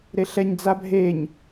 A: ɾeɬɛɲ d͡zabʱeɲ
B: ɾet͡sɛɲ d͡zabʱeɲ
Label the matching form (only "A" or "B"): A